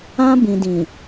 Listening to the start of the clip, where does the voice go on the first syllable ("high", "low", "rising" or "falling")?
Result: high